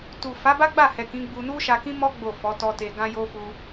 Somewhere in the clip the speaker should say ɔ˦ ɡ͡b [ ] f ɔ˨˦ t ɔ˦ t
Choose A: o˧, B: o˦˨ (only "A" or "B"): B